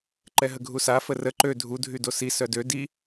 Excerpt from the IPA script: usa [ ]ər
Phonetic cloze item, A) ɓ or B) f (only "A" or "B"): B